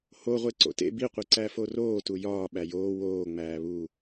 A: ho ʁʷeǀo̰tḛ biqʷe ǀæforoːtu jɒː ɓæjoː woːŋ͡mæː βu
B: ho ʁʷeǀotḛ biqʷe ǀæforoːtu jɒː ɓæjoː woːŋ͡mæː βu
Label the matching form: A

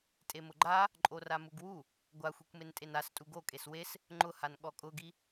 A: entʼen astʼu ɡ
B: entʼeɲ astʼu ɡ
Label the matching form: A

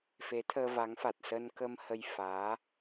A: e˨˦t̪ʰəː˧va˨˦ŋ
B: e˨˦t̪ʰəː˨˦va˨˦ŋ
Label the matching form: A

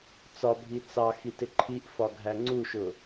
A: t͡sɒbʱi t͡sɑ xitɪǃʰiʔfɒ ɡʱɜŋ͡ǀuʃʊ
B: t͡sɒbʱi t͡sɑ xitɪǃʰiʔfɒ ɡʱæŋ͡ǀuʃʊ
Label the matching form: B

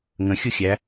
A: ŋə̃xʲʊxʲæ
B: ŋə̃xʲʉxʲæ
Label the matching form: A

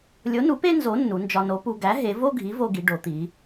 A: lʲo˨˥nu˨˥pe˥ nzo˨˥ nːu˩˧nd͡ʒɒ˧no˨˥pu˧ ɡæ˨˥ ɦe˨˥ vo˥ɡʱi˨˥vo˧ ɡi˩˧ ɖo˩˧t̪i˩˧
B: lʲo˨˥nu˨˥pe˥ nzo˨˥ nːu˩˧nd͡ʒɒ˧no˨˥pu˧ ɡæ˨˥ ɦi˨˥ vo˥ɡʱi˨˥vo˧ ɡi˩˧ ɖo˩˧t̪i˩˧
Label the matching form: A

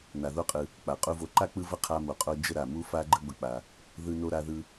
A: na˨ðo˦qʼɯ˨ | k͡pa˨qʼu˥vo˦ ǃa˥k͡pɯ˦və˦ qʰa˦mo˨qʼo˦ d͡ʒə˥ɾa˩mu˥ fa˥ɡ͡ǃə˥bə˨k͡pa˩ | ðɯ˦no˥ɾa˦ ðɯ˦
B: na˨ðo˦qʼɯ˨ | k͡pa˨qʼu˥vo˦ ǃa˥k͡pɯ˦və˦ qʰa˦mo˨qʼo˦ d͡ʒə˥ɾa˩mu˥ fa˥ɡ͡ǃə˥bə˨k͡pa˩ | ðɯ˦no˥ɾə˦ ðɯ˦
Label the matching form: A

